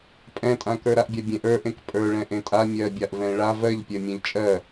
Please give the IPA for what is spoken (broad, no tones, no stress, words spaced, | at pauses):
pʼɛ̃tʼãkə˞ ɾaʔbʲabʲẽʔ ə˞ʔẽk pʼə˞ɭɛ̃ ʔẽtʼa mʲɜbʲaʔ vɛ̃ɭav ɜʎpʲɜ mʲẽʎt͡ʃʼɜ